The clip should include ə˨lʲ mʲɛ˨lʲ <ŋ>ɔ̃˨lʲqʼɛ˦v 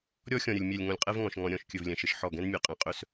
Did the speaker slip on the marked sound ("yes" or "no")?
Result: no